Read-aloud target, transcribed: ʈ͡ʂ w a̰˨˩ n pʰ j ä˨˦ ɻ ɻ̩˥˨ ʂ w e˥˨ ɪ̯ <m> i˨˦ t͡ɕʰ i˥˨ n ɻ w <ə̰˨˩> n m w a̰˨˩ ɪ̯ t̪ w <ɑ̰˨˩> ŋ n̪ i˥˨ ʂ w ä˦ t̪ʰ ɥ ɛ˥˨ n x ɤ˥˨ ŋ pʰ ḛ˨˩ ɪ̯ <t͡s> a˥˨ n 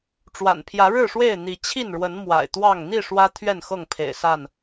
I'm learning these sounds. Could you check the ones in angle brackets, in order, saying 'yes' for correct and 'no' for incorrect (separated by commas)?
no, no, no, no